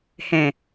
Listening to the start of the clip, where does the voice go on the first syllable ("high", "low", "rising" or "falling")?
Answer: low